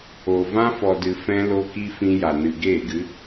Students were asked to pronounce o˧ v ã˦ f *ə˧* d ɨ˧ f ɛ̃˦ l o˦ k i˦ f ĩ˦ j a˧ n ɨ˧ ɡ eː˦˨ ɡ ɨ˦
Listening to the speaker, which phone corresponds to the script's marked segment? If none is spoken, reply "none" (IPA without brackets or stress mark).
ɔ˧